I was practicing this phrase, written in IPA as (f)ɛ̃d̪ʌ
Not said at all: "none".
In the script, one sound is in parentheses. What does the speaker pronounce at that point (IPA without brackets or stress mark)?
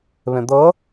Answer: β